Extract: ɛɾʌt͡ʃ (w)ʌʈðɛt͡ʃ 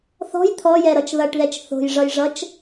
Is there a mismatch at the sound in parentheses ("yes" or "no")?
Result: yes